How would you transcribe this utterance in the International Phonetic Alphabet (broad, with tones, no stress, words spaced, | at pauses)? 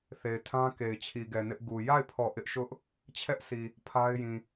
θe˨ɪ̯tʰã˦ke˨ɪ̯ t͡ɕʰi˨ɡɛ˨nɪ˦ʔɡu˨ ja˦˨ɪ̯pʰɔ˨ ʔɪ˦ʔʃʊ˦ʔ | t͡ɕʰɛ˦ʔsi˨ | pʰa˦ɪ̯jĩ˨